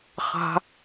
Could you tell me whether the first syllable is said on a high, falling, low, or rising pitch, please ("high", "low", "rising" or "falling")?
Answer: high